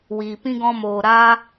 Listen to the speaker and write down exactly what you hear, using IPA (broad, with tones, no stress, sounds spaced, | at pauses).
w iː˨ p ĩ˦ ɡ ɔ̃˦ m oː˧ ɾ aː˦